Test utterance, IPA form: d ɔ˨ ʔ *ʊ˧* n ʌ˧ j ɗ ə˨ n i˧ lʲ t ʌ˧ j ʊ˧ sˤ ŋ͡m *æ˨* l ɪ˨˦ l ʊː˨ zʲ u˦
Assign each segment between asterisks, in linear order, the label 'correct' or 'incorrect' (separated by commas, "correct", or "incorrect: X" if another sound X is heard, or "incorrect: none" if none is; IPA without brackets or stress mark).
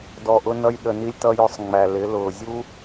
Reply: correct, correct